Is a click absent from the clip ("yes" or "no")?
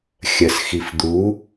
yes